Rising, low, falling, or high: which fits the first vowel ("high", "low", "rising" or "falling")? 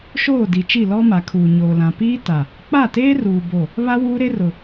falling